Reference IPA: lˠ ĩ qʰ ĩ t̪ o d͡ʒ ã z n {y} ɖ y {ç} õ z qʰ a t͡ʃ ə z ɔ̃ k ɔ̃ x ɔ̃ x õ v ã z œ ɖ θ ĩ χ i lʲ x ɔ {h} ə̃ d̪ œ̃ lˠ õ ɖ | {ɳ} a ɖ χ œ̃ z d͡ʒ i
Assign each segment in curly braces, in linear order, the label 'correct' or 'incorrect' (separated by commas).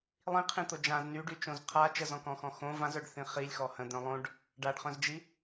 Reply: correct, incorrect, correct, incorrect